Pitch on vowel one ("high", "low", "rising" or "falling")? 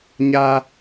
high